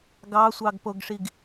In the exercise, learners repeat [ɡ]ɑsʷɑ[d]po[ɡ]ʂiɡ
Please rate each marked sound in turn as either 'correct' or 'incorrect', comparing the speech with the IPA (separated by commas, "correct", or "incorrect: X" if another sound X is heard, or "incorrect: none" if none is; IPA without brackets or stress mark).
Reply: correct, incorrect: ɡ, correct